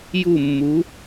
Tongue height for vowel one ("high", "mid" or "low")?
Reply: high